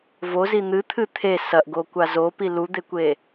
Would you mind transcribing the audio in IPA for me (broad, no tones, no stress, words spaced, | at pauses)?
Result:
vozi n̪ɨt̪ʰɨ t̪ʰe sɐʔɡokʷa zopi lud̪ekʷe